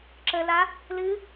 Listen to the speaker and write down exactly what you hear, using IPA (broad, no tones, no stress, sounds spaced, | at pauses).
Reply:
ǁ ə l a | l ɨ